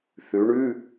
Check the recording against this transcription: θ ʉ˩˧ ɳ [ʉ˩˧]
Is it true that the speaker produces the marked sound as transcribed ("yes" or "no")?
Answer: no